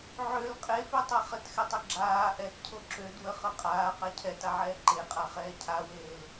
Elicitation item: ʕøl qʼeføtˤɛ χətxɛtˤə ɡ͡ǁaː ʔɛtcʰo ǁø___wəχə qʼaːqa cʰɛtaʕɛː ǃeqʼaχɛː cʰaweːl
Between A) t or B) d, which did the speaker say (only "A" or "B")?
B